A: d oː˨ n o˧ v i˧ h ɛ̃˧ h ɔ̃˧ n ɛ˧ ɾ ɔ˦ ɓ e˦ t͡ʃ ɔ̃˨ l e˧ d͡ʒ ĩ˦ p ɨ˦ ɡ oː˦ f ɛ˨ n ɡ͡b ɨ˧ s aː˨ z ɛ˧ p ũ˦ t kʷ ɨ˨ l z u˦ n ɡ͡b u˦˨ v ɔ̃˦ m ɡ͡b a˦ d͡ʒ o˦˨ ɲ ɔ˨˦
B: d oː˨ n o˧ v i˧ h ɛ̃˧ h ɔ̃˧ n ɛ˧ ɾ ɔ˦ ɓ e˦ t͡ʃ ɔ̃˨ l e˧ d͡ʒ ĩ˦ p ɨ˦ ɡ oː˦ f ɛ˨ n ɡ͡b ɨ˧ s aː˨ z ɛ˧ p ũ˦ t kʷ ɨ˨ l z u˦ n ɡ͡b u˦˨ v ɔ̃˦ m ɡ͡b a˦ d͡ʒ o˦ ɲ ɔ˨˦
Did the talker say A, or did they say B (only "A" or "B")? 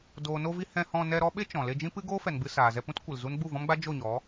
A